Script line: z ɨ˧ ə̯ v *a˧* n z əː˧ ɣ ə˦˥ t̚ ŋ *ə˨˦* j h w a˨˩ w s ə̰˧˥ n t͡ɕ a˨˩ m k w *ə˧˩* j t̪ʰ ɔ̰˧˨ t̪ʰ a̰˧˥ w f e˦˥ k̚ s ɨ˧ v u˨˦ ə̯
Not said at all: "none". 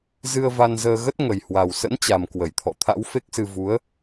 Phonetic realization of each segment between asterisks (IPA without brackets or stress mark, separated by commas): a˧, ə˨˩, ə˧˩